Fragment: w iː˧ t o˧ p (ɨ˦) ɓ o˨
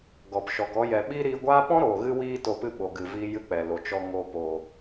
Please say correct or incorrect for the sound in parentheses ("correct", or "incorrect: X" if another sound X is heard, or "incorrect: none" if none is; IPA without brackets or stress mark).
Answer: correct